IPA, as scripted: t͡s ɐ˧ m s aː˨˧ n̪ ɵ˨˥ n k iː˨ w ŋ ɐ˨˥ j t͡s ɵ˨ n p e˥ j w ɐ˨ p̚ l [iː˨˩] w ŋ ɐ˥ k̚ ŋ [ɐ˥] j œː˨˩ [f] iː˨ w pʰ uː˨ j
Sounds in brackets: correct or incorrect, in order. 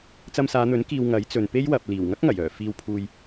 correct, incorrect, correct

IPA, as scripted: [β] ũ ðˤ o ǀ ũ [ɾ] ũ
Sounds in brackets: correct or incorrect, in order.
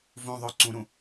incorrect, correct

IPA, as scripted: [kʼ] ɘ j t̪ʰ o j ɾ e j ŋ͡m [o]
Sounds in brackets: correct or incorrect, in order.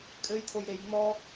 correct, incorrect

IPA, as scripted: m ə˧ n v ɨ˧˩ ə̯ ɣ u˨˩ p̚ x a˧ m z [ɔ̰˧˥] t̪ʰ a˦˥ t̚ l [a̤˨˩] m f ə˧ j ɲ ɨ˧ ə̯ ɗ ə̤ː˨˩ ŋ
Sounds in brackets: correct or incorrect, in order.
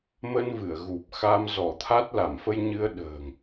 incorrect, incorrect

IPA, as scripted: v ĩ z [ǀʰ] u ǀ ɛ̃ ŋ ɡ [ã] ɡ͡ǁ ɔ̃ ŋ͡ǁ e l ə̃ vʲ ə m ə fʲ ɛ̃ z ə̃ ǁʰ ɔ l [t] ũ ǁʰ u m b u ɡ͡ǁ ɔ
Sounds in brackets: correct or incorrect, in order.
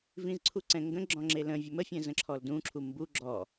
correct, incorrect, incorrect

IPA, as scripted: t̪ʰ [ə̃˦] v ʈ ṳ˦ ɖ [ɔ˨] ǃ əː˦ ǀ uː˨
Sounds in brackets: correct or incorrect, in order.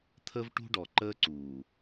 incorrect, correct

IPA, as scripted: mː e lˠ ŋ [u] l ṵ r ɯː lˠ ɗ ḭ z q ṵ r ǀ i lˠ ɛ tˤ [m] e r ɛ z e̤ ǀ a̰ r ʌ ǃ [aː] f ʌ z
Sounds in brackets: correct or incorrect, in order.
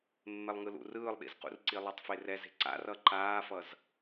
incorrect, incorrect, correct

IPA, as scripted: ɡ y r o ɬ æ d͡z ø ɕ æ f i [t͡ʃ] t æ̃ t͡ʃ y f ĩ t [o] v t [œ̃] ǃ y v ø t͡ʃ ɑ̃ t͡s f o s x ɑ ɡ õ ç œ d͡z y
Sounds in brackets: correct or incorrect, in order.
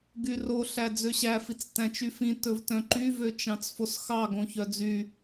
incorrect, incorrect, correct

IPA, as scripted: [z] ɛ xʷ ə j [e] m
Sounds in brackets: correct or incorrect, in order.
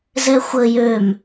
correct, incorrect

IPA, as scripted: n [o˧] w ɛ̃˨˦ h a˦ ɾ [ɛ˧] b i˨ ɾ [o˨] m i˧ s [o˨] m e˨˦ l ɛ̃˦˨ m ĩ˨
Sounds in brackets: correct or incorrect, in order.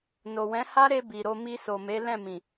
incorrect, incorrect, incorrect, correct

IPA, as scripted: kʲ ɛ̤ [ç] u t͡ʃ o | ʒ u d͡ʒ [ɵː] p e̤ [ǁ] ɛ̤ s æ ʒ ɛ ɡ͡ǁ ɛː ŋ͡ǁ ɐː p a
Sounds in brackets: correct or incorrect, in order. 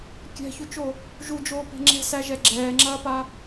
correct, incorrect, incorrect

